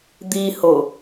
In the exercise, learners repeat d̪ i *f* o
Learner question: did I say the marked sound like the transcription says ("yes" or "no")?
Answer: no